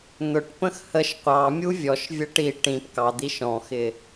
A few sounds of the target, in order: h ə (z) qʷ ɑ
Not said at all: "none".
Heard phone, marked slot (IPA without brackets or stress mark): ʃ